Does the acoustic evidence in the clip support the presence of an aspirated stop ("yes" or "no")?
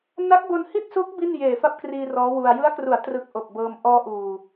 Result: no